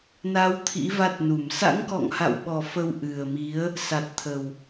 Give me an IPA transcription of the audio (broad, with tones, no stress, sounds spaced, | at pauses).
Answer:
n a˨˦ w t̪ʰ ḭ˧˥ v a˦˥ t̚ n u˧˩ m s a̰˧˥ ŋ k ɔ̰˧˨ ŋ h a̰˧˨ w ɓ ɔ˨˩ f ə˧ w ʔ ɨ˨˩ ə̯ m i˨˦ ə̯ | s a˨˩ t̚ t̪ʰ ə˨˩ w